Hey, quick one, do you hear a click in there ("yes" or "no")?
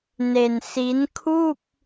no